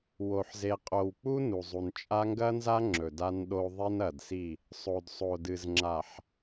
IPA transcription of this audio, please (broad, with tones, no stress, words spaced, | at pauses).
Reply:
wo˨ħze˨qʼo˨wk͡pu˦ nu˨zˤu˨nt͡ʃʼa˦ ŋɡɐ˦nza˦ ŋ͡ǁɵ˨da˦nɗo˦ ðˤi˦nɐ˨dsi˦˨ | sˤo˨dsˤo˨dɨ˨zŋ͡ǁa˨ħ